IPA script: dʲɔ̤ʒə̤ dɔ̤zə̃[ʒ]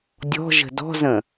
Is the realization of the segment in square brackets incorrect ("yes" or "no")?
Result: yes